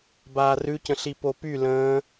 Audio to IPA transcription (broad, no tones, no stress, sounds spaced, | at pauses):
b aː r ʉ c ə̃ ɬ i p o p y l ə̃ː